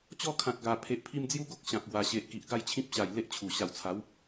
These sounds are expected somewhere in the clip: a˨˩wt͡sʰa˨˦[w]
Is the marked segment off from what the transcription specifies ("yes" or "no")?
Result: no